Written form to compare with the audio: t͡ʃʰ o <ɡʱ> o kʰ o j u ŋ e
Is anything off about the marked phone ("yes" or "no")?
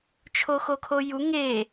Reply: yes